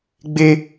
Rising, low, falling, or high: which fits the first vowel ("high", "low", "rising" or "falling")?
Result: high